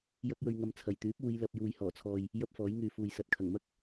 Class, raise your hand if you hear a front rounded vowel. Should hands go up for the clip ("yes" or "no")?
yes